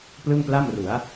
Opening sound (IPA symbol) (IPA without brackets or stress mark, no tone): p